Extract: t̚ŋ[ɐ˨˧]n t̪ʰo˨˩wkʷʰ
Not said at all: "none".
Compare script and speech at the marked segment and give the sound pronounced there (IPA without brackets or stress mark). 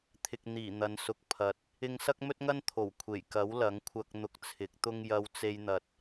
ɐ˥